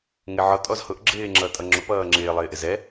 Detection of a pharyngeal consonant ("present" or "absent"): present